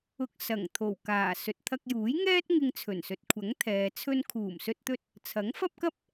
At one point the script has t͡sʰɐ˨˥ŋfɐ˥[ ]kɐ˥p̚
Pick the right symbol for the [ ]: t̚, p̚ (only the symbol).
p̚